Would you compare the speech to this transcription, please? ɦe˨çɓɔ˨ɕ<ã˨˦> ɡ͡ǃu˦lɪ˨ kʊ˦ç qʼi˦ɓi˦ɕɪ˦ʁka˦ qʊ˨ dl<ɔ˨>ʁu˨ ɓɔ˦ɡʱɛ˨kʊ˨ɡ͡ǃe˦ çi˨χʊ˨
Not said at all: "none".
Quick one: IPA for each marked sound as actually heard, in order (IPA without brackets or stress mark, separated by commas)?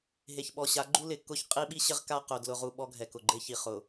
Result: a˨˦, ʊ˨